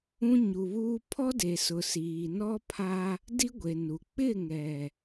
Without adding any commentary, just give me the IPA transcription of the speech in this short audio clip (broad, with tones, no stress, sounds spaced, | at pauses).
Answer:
ũ˦ ɲ u˨ β uː˦ pʰ ɔ˦ d e˨ s ʊ˨ s iː˨ n ɔ˦ pʰ a˦ | d i˦ ɡʷ e˨ n u˨ k͡p ɪ˦˨ ŋ ɛ˨